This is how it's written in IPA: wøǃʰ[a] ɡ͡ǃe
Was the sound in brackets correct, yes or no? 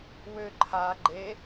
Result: yes